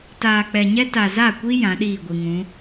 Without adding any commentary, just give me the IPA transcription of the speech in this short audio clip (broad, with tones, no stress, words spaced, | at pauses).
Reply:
taː˨k͡pɛ˨ɲɛ˦ ta˨za˦˨kʷi˦ jã˨˦ɗiː˦˨ɡʷi˨ŋũ˨˦